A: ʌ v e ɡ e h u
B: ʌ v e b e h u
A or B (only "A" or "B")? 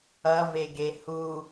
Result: A